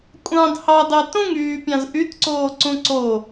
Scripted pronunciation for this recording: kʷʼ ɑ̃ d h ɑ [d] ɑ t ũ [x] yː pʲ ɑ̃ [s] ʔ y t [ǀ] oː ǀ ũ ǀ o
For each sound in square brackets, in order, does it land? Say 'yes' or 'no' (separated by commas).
yes, no, no, yes